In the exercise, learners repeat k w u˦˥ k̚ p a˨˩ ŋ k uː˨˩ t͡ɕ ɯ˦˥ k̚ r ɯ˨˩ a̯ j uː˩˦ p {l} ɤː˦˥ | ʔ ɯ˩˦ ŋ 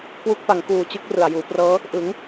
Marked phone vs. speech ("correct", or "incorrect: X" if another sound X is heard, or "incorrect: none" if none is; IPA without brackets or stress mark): incorrect: r